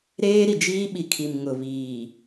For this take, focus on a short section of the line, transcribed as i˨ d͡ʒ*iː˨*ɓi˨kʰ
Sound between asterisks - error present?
yes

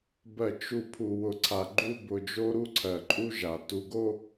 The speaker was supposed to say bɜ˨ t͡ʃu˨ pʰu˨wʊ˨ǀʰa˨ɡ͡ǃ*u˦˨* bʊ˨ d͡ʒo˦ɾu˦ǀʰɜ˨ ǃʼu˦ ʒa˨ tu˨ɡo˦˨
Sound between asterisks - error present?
no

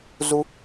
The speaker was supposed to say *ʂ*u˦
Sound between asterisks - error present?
yes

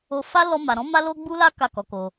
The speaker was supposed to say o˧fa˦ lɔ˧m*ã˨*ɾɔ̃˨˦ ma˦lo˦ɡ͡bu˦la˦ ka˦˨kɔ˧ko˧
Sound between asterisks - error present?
yes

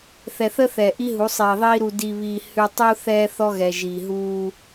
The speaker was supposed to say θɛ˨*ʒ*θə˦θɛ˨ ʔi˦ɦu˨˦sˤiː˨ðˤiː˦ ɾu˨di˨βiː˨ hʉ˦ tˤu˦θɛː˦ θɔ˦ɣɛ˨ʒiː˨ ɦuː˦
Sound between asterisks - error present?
yes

